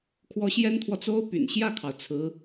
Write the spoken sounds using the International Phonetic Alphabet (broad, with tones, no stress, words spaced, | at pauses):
kʰwɔ˧˥ɕjɛ˥nt̪ʰwɔ˨t͡so˥ʊ̯ py̰˨˩nɕjä˥˩kʰɑ˩ʊ̯ t͡sʰɹ̩˧˥